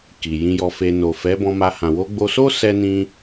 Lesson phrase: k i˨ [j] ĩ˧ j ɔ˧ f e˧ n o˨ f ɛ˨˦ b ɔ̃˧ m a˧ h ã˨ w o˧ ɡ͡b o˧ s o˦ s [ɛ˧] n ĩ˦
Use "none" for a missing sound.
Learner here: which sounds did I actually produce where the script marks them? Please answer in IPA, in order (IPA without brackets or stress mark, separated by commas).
j, ɛ˦